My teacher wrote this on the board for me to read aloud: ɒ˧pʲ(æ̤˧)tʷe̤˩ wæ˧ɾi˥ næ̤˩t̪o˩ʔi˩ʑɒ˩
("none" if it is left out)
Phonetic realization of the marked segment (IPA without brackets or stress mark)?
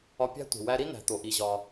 æ̤˥